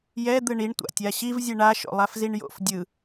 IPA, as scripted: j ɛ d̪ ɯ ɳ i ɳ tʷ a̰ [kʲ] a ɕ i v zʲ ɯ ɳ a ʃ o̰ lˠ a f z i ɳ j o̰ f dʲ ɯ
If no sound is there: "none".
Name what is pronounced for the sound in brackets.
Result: tʲ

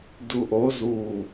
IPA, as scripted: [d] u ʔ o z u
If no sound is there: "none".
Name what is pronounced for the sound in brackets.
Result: d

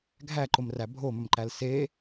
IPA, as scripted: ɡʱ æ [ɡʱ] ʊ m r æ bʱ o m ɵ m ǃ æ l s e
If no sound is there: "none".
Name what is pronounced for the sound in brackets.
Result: ǃ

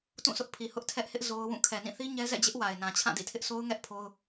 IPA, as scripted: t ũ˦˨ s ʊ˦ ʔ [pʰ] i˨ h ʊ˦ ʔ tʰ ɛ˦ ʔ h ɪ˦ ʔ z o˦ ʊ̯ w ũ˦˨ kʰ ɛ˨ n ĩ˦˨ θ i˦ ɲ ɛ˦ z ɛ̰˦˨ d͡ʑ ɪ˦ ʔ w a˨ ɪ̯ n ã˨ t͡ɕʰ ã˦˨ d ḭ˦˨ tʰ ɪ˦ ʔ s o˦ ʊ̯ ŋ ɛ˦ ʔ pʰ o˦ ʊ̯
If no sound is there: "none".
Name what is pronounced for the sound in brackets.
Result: pʰ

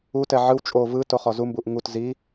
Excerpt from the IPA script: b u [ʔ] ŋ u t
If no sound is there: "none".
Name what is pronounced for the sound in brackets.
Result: ʔ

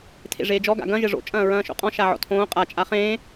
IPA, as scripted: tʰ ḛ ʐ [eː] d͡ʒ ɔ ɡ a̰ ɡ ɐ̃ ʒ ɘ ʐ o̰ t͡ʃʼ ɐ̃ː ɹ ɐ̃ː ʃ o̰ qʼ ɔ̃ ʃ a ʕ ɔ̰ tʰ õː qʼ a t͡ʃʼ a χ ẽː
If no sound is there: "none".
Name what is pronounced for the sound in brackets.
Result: eː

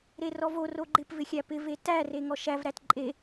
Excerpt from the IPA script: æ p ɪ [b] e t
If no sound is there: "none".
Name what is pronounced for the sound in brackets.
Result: v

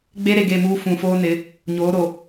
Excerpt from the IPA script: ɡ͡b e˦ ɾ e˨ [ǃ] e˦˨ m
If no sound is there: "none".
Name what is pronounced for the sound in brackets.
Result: ɡ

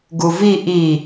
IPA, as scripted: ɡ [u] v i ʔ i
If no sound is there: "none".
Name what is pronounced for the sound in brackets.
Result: u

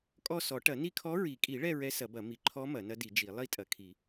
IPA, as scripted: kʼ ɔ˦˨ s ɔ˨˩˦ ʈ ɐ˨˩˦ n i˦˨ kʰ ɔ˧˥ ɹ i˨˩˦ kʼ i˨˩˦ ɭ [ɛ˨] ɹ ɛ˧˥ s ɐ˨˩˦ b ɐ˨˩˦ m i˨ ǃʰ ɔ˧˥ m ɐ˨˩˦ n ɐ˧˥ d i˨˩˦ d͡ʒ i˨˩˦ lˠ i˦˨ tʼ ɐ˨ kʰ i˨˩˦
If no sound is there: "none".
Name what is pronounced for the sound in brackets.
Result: ɛ˦˨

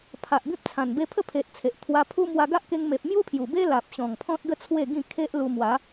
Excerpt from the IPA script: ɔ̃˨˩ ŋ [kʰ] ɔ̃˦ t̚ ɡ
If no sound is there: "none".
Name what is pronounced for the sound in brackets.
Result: pʰ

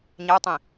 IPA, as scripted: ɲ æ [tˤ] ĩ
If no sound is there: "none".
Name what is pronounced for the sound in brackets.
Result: tˤ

